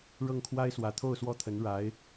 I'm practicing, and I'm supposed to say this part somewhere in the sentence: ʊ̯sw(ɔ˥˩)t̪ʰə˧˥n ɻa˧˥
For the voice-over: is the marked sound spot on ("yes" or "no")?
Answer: yes